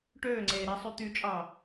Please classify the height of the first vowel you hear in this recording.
mid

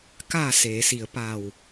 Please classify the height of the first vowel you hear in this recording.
low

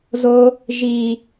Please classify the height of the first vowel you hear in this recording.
mid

